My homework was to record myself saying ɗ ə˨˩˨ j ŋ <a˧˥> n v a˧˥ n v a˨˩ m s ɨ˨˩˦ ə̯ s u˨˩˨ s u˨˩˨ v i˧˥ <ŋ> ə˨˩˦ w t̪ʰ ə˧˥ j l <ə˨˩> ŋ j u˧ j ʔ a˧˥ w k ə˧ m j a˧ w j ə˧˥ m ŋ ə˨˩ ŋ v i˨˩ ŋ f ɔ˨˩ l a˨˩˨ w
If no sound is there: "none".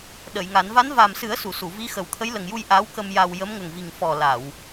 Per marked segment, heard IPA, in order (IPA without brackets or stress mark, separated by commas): a˨˩˦, x, ə˨˩